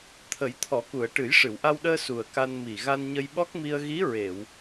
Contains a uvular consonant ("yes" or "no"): no